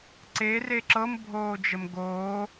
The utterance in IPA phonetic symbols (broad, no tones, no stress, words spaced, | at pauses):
ǀere ǁɤmbʱoːd͡ʒəm ɡoː